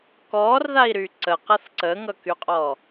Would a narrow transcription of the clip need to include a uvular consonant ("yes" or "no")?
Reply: yes